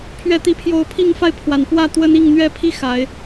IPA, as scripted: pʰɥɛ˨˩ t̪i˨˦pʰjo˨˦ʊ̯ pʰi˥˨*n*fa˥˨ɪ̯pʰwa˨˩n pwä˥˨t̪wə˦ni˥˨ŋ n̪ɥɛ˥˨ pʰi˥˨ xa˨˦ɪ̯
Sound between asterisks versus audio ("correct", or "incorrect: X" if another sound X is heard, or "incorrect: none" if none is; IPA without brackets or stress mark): incorrect: ŋ